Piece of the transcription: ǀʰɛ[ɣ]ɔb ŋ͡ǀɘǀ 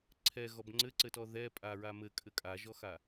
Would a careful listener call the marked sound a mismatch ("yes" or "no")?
no